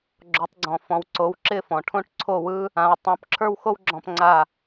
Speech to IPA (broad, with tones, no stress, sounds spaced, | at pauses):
ɡ͡ǁ o˩˥ tˤ ɡ͡ǀ ɔ̃˩ f ɔ̃˩˥ w ǀ o˩˥ w ǁ ɪ˥˩ f ɔ̃˩ ʈʰ õ˥ ʈ ǀʰ o˥˩ w ɯ˥ | ã˩ w tˤ õ˩˥ p ǁʰ ə˞˥ w x o˥ w ɡ͡ǁ ɔ̃˧ p ŋ͡ǀ a˥˩